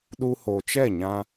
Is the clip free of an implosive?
no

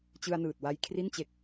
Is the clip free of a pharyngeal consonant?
yes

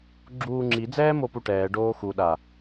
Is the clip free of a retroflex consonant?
no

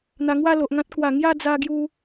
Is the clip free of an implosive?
yes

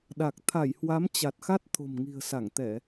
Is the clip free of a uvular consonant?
yes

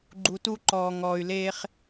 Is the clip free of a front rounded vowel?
no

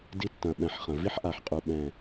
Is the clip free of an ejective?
no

